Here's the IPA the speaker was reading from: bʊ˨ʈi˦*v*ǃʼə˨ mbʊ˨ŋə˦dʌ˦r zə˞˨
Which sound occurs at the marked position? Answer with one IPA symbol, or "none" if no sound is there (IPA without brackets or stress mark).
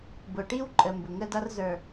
w